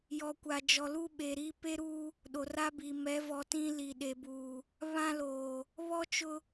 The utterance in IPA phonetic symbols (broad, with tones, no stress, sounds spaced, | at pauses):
j ɔ˨ kʷ a˨ d͡ʒ ɔ˨ l u˦ ɓ e˨ ɾ iː˦ p e˦ ɾ uː˦ | ɗ o˨ r a˦ b i˨ m ɛ˨˦ v ɔ˨ t ĩ˦ l i˨ ɗ e˨ b uː˨ | β ã˦ l oː˨ | β ɔ˦ t͡ʃ ʊ˦